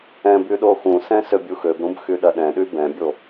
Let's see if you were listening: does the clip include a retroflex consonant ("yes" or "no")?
no